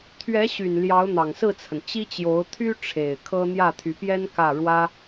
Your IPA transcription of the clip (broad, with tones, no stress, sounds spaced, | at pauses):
t̪ʰ ɥ ɛ˧˥ ɕ y˨˩ n l j ɑ˧˥ ʊ̯ n̪ ɑ˨˩ ŋ s ɹ̩˥˩ t͡sʰ ə˩ n t͡ɕ i˥ t͡ɕ j o˧˥ ʊ̯ t̪ʰ y˥ ʈ͡ʂʰ e˨˩ ɪ̯ kʰ ɤ˥ n̪ j ä˥˩ t̪ʰ y˧˥ p j ɛ˥ n k ä˥˩ ɻ w ä˥